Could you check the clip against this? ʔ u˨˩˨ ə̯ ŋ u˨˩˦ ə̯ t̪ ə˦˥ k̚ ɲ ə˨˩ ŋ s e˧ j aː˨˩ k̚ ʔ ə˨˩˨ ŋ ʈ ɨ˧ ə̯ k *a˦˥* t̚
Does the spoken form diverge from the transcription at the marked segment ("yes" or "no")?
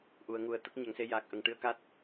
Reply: no